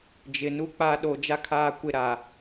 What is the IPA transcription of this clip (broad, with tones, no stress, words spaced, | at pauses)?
d͡ʒɪ˨nu˦k͡pa˦ ɗo˨ d͡ʒa˦kʰaː˦˨ kʷɪ˦˨ ɾa˨